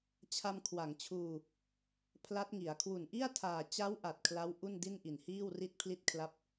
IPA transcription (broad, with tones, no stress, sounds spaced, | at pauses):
t͡ɕʰ a˧ m kʰ w a˩˦ ŋ t͡ɕʰ uː˧ | pʰ l a˦˥ t̚ ŋ i˩˦ a̯ kʰ w u˨˩ n ʔ i˥˩ a̯ tʰ aː˨˩ t͡ɕ a˦˥ w ʔ a˨˩ t̚ kʰ l a˦˥ w ʔ u˥˩ n d i˥˩ n ʔ i˨˩ n h iː˥˩ w r i˥˩ t̚ pʰ l i˥˩ t̚ kʰ l a˥˩ p̚